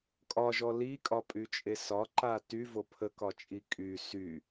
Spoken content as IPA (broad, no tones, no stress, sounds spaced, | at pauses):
kʼ ɒ ʒ ɔ l i kʼ ɒ pʼ y t͡ʃʼ e s ɒ ǃ a t y v o pʰ ə k ɒ t͡ʃʼ i kʼ y s y